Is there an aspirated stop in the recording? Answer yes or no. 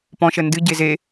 no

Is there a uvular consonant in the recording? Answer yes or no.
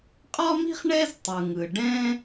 yes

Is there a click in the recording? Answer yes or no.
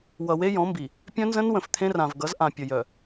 no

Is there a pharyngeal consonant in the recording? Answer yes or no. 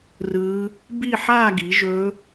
yes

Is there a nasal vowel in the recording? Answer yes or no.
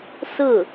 no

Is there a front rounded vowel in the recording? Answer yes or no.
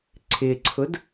no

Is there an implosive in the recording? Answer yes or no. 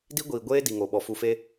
yes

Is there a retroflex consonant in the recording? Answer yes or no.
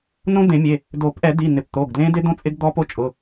no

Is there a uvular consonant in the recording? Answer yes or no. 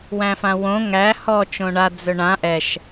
no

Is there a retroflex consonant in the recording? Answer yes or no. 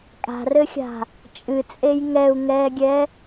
no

